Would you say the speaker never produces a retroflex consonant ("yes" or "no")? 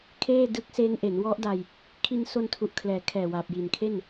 yes